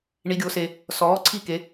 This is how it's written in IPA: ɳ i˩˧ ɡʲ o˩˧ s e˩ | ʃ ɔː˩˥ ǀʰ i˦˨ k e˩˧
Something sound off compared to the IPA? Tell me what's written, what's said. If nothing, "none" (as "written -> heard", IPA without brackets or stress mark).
ʃ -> s